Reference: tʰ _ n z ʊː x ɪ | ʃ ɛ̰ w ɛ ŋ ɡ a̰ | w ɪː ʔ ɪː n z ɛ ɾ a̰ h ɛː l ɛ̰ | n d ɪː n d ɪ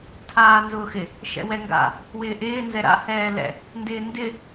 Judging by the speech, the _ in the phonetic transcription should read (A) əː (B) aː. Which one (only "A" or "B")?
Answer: B